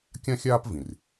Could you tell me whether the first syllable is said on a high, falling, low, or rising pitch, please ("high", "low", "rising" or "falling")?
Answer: high